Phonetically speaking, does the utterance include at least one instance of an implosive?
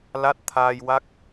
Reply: no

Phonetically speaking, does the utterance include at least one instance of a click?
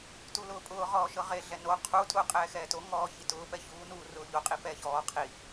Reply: no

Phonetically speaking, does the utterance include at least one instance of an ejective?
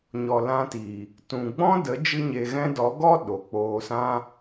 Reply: no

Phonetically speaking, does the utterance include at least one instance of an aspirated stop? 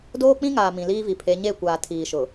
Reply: yes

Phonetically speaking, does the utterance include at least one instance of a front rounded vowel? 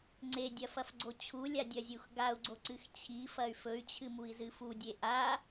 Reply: yes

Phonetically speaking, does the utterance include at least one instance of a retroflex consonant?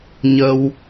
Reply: no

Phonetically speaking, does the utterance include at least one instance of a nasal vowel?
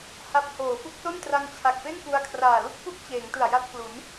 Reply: no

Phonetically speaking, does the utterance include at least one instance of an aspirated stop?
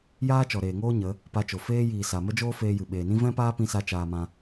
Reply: no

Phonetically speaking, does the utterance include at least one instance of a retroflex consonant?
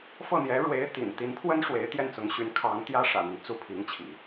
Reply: yes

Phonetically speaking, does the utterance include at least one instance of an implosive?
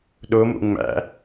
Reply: yes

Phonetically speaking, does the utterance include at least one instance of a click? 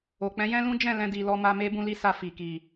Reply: no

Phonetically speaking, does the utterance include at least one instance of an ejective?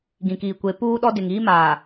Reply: no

